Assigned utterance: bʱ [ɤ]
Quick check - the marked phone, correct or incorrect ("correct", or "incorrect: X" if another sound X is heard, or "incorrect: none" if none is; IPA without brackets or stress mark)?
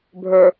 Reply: incorrect: ə˞